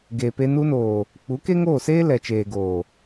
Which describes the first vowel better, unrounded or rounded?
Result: unrounded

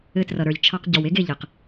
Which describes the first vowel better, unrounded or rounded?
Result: unrounded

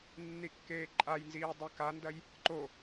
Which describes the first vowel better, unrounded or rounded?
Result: unrounded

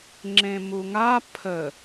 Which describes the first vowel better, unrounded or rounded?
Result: unrounded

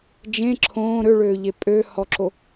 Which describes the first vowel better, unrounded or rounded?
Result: unrounded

